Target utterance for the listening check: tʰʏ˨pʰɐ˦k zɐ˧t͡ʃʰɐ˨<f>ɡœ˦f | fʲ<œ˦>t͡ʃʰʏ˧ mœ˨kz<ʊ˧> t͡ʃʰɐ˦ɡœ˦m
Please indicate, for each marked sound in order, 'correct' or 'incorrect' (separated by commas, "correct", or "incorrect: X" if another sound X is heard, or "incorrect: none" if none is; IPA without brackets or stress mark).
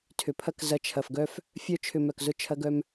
correct, correct, incorrect: ʊ˦